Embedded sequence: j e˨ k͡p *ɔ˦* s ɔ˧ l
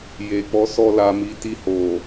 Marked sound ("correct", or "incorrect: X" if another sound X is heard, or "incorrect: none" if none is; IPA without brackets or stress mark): incorrect: ɔ˨˦